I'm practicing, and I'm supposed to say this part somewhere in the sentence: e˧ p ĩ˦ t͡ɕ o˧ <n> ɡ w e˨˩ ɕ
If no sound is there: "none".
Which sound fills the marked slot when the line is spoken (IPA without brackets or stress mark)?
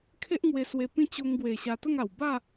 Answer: ŋ